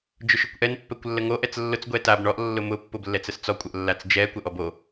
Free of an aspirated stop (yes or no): yes